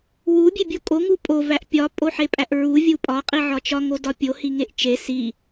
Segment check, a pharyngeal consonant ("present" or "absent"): present